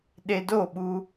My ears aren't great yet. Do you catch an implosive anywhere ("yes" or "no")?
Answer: yes